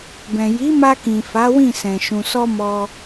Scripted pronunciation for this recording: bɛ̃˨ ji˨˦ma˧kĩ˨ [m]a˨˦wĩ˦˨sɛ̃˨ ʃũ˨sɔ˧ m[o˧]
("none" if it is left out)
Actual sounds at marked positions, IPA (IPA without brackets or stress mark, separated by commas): f, ɔ˧